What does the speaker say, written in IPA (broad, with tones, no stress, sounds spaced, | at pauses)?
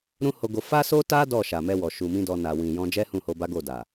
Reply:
ɾ ũ˦ h o˧ ɡ o˧ f a˦ s o˦ t a˦ d ɔ˦˨ ʃ a˨ m ɛ˧ w ɔ˨ ʃ u˨ m ĩ˧ d ɔ˧ n a˨ w ĩ˨ j ɔ̃˧ d͡ʒ ɛ˦ h ũ˦˨ h o˧ b a˦ ɡ o˦˨ d a˨